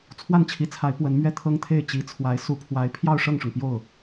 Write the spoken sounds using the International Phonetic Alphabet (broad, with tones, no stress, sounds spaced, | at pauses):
t͡sʰ w a˥˩ n t͡ɕʰ i˧˥ t͡sʰ a˧˥ ɪ̯ p w ə˧˥ n m ɥ ɛ˥˩ t̪ʰ ɤ˥ ŋ t̪ʰ e˥˩ ɪ̯ t͡ɕ i˧˥ t͡sʰ w a˧˥ ɪ̯ s u˧˥ pʰ w a˧˥ ɪ̯ pʰ j ɑ˥˧ ʊ̯ ʂ ɤ˥˩ ŋ ʂ ʊ˩ ŋ p j o˥˩ ʊ̯